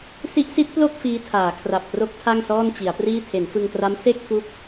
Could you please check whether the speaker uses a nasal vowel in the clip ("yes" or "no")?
no